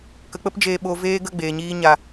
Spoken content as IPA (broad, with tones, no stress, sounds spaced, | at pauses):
k ə˨˦ k͡p ə˦ p d͡ʒ eː˧ ɓ o˨ v eː˧ ɡ ə˦˨ ɡ͡b eː˨ ɲ iː˧ ɲ a˨